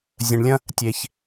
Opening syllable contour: low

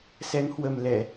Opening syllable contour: rising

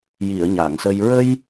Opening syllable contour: low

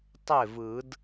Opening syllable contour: falling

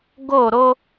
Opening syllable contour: falling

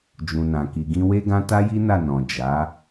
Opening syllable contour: low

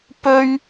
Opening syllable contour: high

